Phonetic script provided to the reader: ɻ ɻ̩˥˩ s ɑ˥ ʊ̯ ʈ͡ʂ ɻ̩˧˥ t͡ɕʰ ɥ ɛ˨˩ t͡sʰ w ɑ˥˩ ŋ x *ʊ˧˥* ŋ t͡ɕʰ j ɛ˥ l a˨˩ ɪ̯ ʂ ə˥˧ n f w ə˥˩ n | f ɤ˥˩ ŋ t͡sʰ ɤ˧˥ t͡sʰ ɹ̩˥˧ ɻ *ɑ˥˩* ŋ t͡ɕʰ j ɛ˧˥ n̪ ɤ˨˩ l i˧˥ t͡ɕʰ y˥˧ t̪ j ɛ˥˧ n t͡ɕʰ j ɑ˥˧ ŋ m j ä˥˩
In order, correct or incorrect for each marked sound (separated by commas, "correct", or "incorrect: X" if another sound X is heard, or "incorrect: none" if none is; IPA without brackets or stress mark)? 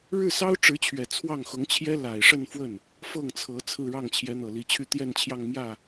correct, correct